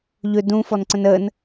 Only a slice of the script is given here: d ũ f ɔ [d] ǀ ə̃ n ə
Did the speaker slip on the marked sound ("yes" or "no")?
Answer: yes